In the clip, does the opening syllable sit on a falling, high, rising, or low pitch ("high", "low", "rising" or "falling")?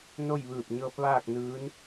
falling